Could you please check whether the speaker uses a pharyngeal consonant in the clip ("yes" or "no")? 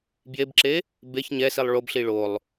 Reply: no